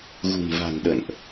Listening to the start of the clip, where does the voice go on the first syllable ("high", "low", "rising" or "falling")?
low